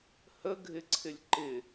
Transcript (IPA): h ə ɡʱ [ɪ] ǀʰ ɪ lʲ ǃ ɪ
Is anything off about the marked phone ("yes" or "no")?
no